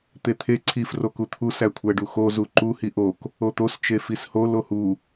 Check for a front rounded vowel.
absent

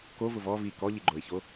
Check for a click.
present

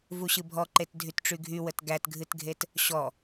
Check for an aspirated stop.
absent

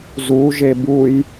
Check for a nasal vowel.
absent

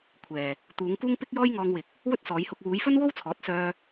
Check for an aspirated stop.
present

